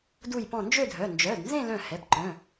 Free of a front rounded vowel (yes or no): no